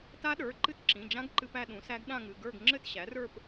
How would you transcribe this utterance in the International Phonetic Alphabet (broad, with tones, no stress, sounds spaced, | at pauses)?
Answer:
t a˦˥ ɗ ə˞˩˧˩ ǃ ɨ˦˥ t ǁ ĩ˩˧˩ d͡ʒ ã˦˥ ɡ ǃ ɨ˧ p æ˥˧ ɗ ũ˩˥ s æ˦˥ ɡ ɗ ã˥˧ ŋ ɨ˩˧˩ ɡ ə˞˥˧ ɡ ŋ͡ǁ ɘ˥˧ t ɕ æ˩˥ r ə˞˥˧ p